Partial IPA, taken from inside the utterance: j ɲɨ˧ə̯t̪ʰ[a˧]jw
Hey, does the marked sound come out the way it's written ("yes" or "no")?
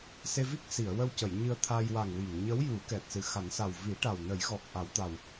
yes